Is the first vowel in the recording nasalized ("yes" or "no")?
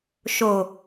no